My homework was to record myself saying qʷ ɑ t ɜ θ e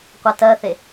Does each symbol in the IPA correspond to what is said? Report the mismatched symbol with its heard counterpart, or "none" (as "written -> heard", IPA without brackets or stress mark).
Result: ɑ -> a